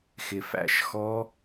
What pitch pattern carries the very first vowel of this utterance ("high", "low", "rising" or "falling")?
low